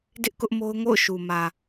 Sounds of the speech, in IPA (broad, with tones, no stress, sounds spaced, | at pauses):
d ɪ˦ ʔ k ʊ˦ ʔ m o˦ ʊ̯ ŋ o̰˦˨ ʊ̯ ʃ u˨ m ä˨